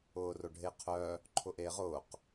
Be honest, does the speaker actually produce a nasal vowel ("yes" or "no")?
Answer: no